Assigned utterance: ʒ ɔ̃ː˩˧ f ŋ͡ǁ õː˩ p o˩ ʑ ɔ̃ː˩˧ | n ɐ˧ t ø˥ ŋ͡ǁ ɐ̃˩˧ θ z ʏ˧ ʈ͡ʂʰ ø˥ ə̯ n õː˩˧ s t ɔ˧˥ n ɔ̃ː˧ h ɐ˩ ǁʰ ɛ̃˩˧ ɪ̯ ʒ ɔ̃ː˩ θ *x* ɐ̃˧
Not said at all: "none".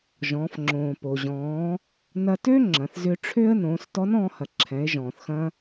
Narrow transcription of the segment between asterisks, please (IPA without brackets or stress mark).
x